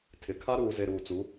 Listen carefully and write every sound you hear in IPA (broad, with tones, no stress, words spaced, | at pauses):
tʰɪ˨ kʰa˦ɾuː˨ze˨ ɾuː˨t͡su˨˦